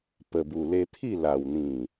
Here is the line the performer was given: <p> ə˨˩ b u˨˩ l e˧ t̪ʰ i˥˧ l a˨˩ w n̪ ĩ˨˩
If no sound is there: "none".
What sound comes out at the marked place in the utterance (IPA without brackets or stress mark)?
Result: p